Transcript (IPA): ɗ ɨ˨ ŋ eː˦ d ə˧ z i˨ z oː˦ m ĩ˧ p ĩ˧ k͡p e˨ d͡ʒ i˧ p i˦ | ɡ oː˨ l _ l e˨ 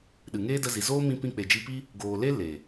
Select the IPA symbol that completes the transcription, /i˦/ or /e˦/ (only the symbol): e˦